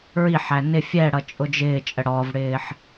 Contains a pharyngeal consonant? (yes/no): yes